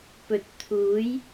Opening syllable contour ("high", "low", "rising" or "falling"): low